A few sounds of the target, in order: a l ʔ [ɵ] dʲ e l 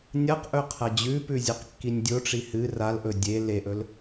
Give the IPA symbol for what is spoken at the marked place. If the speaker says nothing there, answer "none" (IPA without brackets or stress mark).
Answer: ɵ